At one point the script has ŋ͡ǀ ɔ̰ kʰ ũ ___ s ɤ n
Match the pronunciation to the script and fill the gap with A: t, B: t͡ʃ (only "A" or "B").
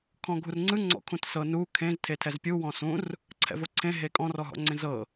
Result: A